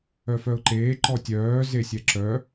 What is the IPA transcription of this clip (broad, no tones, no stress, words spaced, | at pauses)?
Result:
œfœʊ̯ǃeː ǃɔtʲœː zesʲɛǁœ